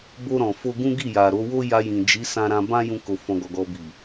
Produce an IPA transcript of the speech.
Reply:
b o˧ ɾ ɔ̃˨ f o˧ ɡ ũ˦ ɡ i˦˨ j a˨ ɾ o˨˦ w o˦ j a˧ j ĩ˨ d͡ʒ i˨˦ s ã˧ ɾ ã˧ b ã˦ j ũ˦ k o˧ f ɔ̃˧ ɡ ɔ˧ ɡ ɔ˧ b i˨

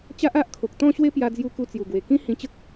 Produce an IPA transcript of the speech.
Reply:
t͡ɕ a˦ ʔ a˦ ʔ kʰ o˨ k̚ t̪ ɔ̃˥˧ ɕ w e˦ p j a˧ d͡z j u˧ k u˧ t͡s j u˨˩ ɡ w e˨˩ k ĩ˦ h ĩ˧ t͡ɕ ə˦ k̚

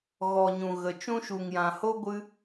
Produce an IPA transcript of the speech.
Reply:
ɣ ɔ˨ ɲ ũ˨ ɣ ə˨ t͡ʃ ũ˦ ʃ u˨ ŋ j ã˨ h o˦ ɡʷ ɨ˦

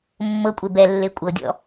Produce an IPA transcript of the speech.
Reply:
mː ɤ kʷʼ e b ɛ lː e kʷʼ ɤ dʲ ɔ̰

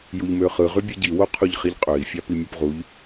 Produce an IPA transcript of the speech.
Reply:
j u ʎ m ø χ ɯ ʁ y bʲ ɯ ɟ i w o qʰ u ʎ χ i ʎ qʼ ø i̯ fʲ ɑ p i mʲ o p ʁ u ʎ

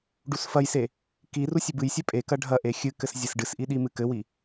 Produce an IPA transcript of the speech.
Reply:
ɖ u s f ɐ j s e | k i r u sʲ ɘ b ɨ j sʲ ɛ pʼ e k ɐ ɖʱ ɐ ʔ e xʲ ɨ k ɘ s zʲ e s ɖ ɨ s ʔ i ɗ i m ɨ k ɘ w i

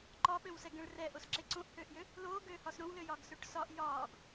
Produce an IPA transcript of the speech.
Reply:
ǃ ɒ ɓ ø w s ɛ ɡ ɛ̃ ɭ r ɛ ʔ o s ǁ e ǀ õ ʔ h øː ʔ j ø | l oː ɡ øː h ɒ s ɾ õ w l ø j ɒː ɡ s ø ʈ s ɒ ʔ j ɒː ɡ

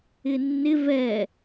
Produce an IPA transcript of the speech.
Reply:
ɪ nː ɪ v ɛ

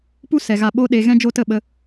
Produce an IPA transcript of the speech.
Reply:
p u˦ s ɛ˨ ɣ a˧ ɓ o˧ ɗ e˨ ɣ ɛ̃˦ d͡ʒ o˦ t ə˦˨ ɓ ə˧

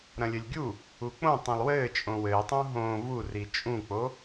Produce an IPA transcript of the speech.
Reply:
ɾ ɐ̃ lʲ ɘ lʲ ɡʲ u | u k͡p õ tˤ ĩ lˠ w ɘː t͡ʃʼ õ w ɘː tˤ ũ ɦ õː v u r i t͡ʃʼ ũ k͡p o

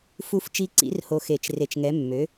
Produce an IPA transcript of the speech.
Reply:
f u˧ f t͡ʃ i˧ ǀ ḭ˩˥ r h o˧ x e˧˩˧ t͡ʃ r e˧ t͡ʃ ŋ ɛ˩˥ mː ø˩˥

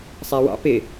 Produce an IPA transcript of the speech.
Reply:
sˤ æ w ɑ̰ p ɪ

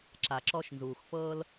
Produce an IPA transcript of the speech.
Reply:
ǁ a˨ ǁ ɔ˦ ʃ n z uː˨ x f ɤː˦ l

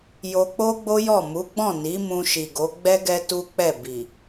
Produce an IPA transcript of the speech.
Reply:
j o˧ k͡p o˦ ɡ͡b o˦ j ɔ˦˨ m u˨˦ ɡ͡b ɔ̃˦˨ n i˨˦ m ũ˧ ʃ i˨ ɡ o˨˦ ɡ͡b ɛ˦ ɡ ɛ˦ t u˦ k͡p ɛ˦˨ b i˨

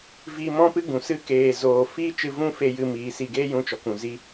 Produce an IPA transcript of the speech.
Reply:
v i˧ m ɔ̃˦ p ɨ˦ ɡ ũ˨ s ɨ˦ k eː˨ z oː˨ f iː˦ t͡ʃ ɨ˧ v ũ˦ f e˧ j ɨ˧ m iː˨˦ s i˧ ɡ eː˦ j ũ˧ t͡ʃ ɔ˨ k ũ˨ z i˦

